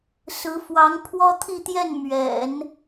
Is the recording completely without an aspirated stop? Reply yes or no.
no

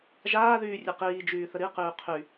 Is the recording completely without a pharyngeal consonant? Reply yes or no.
yes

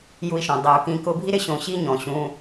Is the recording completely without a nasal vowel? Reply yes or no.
no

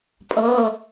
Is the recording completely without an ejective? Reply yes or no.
no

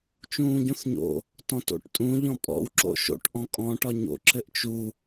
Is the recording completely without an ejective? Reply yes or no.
no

